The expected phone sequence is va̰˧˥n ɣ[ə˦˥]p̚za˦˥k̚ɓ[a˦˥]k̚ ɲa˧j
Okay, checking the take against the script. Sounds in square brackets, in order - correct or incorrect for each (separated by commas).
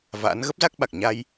correct, incorrect